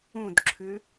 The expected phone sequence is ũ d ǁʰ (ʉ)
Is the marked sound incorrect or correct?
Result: correct